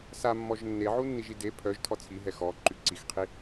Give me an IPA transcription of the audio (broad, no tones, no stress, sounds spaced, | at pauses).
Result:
s a mː ɔ ʒ nː e ʕ u nː i ʒ i d e pʰ œ ʒ tʰ ɔ t͡sʰ i ɦ ɛ x ɔ ǃ y ǀ i x qʰ i